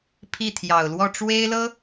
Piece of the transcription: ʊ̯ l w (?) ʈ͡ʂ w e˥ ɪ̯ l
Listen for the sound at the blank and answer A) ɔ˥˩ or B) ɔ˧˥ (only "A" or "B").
A